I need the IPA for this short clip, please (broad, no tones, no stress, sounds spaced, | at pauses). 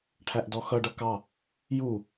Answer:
ʈʰ æ ʔ d ɔ x ʌ ɖ ʌ k ɑ | j u